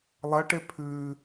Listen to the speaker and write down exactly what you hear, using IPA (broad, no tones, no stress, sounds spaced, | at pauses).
lˠ ɐ ʈ e pʰ ʉː